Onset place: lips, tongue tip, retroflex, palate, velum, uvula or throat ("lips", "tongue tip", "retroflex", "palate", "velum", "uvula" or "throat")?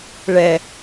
retroflex